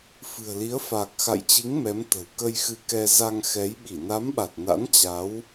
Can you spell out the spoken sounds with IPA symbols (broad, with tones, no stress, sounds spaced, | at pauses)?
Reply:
f ɨ̤˨˩ ə̯ l i˨˦ ə̯ f aː˨˩ k̚ x a̰˧˨ j t͡ɕ i˨˦ ŋ m ɛ˨˦ m t̪ ə̤˨˩ w k ə˧ j x ɨ˧ k ɛ˧ z a˧ ŋ x ɛ˨˦ j ɓ i˧˩ n a˨˦ m ɓ a˨˩ t̚ n a̰˧˥ n t͡ɕ a˨˦ w